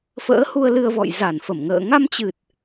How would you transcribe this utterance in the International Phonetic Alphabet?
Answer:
f ə̰ː˧˥ h u˧ ə̯ l ɨ˧ ə̯ v ɔ̰˧˨ j z a˧˩ n f ə˧˩ m ŋ ə̰ː˧˨ ŋ a˧ m t͡ɕ ɨ˨˩ t̚

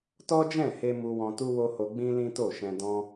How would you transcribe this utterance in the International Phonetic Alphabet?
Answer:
t ɔ˦ d͡ʒ ɛ̃˦˨ h e˧ m u˧ w ɔ̃˧ t u˦ w o˦ h o˧ ɡ͡b ĩ˦ l ĩ˦ t o˦˨ ʃ ɛ̃˧ d ɔ̃˧

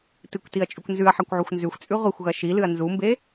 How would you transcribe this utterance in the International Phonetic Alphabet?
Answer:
t ɨ kʷ t i ɐ̯ t͡ʃʼ ʉ kʷ n z ʉ ɐ̯ ħ a kʷ ʕ u xʷ n z ʉ xʷ t͡sʼ ʉ ʁʷ i xʷ ɣ ɐ ʃ i l ɨ ɐ̯ n z u m b e

